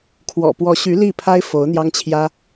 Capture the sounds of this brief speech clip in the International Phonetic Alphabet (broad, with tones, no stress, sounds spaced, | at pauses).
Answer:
kʰ w ɔ̰˨˩ p w ɔ˧˥ ɕ y˧˥ l i˥˩ pʰ a˥ ɪ̯ f o˧˥ ʊ̯ n̪ j ɑ˥ ŋ t͡ɕʰ j ä˥